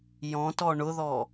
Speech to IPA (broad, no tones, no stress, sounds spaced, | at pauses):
j ɔ̃ t ɔ ɳ ʊ ð ɔ